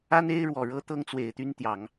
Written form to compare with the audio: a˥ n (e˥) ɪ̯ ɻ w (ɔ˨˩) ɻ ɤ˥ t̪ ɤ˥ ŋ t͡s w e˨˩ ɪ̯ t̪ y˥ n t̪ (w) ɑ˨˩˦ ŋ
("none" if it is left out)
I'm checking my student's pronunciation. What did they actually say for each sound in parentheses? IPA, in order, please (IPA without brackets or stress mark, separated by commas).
e˥, ɔ˨˩, j